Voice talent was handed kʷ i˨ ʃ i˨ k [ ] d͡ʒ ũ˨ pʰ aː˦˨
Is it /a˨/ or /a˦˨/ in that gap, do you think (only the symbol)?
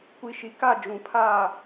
a˦˨